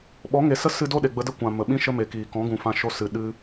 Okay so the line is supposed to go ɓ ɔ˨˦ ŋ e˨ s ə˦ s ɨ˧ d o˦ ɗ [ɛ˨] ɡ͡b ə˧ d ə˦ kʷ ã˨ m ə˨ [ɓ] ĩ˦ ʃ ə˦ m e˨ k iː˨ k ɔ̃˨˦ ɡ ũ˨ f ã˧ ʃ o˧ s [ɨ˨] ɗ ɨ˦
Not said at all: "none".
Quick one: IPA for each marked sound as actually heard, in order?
e˨, ɓ, ɨ˨

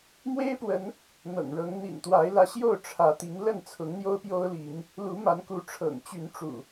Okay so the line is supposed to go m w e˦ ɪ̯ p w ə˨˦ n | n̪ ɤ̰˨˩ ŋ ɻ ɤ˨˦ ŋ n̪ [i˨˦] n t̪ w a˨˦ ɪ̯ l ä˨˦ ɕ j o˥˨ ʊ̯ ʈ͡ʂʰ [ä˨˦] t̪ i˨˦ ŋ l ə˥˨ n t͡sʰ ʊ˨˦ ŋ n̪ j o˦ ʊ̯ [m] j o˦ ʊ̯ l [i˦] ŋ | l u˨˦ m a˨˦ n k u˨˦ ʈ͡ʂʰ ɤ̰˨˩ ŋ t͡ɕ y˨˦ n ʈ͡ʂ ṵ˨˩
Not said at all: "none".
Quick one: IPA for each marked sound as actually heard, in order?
ḭ˨˩, ä˨˦, p, i˨˦

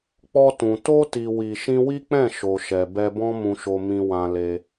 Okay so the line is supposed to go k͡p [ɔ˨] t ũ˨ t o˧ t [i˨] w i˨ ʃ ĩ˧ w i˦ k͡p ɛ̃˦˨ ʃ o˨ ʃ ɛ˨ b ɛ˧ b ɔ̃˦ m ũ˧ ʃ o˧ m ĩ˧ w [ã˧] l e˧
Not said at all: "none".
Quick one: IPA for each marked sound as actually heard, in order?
ɔ˧, i˨, ã˧

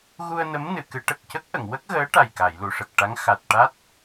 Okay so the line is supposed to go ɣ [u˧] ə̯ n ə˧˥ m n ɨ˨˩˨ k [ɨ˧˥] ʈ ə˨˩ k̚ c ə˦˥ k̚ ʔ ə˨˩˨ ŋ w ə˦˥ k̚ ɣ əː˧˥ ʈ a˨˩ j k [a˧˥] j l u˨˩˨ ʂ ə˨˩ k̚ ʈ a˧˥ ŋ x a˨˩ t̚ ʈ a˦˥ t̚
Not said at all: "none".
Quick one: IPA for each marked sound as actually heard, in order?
u˧, ɨ˨˩˦, a˨˩˨

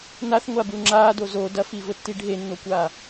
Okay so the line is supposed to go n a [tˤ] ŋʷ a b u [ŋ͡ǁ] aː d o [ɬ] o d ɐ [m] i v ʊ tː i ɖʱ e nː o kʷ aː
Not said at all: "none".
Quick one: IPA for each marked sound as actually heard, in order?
θ, ŋ͡ǁ, z, f

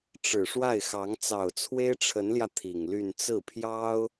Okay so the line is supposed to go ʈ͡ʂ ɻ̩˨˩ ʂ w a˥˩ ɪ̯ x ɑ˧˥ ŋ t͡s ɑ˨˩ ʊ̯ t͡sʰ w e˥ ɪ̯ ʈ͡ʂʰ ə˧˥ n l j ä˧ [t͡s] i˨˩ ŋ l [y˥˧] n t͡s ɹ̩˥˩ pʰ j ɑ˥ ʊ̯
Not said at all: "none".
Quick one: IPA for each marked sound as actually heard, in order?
t̪ʰ, y˥˧

